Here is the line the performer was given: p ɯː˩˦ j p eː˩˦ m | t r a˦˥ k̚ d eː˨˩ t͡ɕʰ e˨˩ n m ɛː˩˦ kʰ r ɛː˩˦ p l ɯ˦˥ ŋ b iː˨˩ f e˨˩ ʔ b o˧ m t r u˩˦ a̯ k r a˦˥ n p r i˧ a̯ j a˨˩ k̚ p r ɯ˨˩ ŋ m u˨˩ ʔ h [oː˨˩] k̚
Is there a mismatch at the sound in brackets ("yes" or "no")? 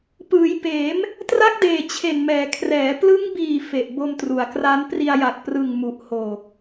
no